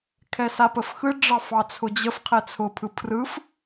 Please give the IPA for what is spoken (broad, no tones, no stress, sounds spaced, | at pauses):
kʰ ɛ s a p ə f x ɯ ɖ͡ʐ ɑ f ɑ t͡sʰ ʊ d͡ʑ ə f qʰ ɛ t͡sʰ ʊ pʰ ɯ pʰ r ɯ f